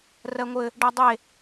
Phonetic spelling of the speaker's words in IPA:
r ɜ ŋʷ ɘ | ɖ ɜ dˤ e

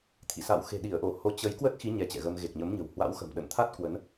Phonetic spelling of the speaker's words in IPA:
t̪ʰ ḭ˧˨ s a̰˧˨ w x e̤˨˩ ɗ i˧˩ ə̯ ʔ o˧˩ h o˨˦ t͡ɕ ə˨˦ j k w ə˦˥ t̚ x i˨˦ ɲ ɛ˨˦ t͡ɕ ɛ̰˧˨ ɣ ə˧ m ɣ e˨˩ k̚ ɲ ə˨˦ m ɲ ə̤˨˩ w h w a̰˧˥ w x ə̤˨˩ m ɗ ə̰˧˨ n t̪ʰ a˦˥ t̚ k w ə˨˦ n

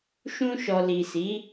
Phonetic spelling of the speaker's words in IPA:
ʃ ũ˧ ʃ ɔ˨ l i˨ s i˨˦

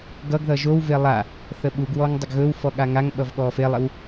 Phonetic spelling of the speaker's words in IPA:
ɡ ʌ ɡ ð ʌ ʒ o w v e lˠ a | θ ə ɓ u ɡ w ɔ ŋ dˤ ə ɡ ɣ ɵ w f ɔ ɠ a ŋ a ŋ ɓ ʌ v ɠ ɔ f e lˠ ɪ w

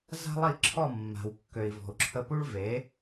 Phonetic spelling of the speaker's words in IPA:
z a̤˥ lˠ i˥˩ ǁʰ ɔ˥˩ mː a̤˩ w kː ø˩ i̯ v ɔ̤˩ u̯ ǁʰ ə˧ p u˥ ɭ v e˩˥

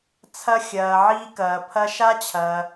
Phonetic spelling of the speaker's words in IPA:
t͡sʰ ɐ˦ xʲ ɐː˧ ʕ iː˦ k ɐː˧ pʰ ɐ˦ ʃ a˦ t͡ɕʰ ɐː˧

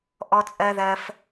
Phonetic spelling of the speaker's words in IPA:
ʔ ɔ˧ t͡sʼ ɜ˧ ð ɜ˧ f

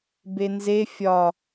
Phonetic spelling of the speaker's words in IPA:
b e n z e fʲ ɒ

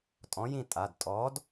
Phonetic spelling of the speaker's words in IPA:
tʼ ɔ̃˨˥ j ĩ˦˨ tʼ a˩˧˩ d tʼ ɔ˨˥ d

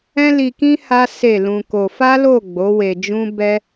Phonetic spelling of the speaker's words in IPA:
ɛ̃˦ l i˧ k ĩ˦ h a˦ s e˦˨ l ũ˧ k o˧ f a˦ l o˦˨ ɡ͡b o˨˦ w e˧ d͡ʒ ũ˦ b ɛ˦

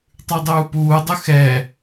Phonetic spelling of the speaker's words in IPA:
tˤ ʉ dˤ uː p uː dˤ œ x ɛ

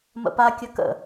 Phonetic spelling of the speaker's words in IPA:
m ə̰ p a kʲ ə k ə̰

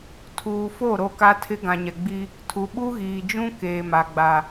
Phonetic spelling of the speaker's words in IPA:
tʰ uː˨ f o˦˨ ɾ o˦˨ k a˦ tʰ ɪ˦ ɡ ã˨ ɲ ɛ˨ ɡ͡b i˦ | tʰ u˨ ɓ u˦ ɣ iː˨ d͡ʒ ũ˦ k eː˨ m a˨ ɡ͡b a˨

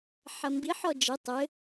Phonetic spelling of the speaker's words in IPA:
ħ ɐ m b i ħ ɔ d͡ʒ ɘ tˤ ɘ

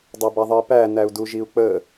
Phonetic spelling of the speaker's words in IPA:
dˤ ɐ b ɐ ðˤ ə i̯ p æ n æ u̯ d u ʒ i u̯ k͡p ə

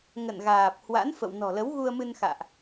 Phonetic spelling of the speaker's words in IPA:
ŋ ə̰˧˨ n ɣ aː˨˩ p̚ h w a̰˧˥ n f ə̰˧˨ w n ɔ̤˨˩ l ə˨˦ w ɣ u˧ ə̯ m ɨ˧ n x a̰ː˧˨ ʔ

